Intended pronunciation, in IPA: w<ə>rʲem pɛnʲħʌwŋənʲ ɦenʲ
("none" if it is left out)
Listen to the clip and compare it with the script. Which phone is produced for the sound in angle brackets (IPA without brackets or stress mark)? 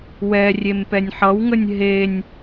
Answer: ɛ